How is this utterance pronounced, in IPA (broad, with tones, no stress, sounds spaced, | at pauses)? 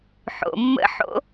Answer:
ħ o̰˩ mː ə̰˧˥ ħ o̰˧˥